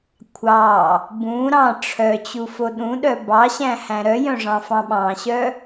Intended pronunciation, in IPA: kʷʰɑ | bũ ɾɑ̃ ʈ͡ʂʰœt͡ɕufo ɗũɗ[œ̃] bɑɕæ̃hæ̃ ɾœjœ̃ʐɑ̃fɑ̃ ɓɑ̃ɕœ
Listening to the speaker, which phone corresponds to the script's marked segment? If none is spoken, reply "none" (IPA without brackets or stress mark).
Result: œ